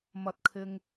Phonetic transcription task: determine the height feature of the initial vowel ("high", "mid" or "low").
low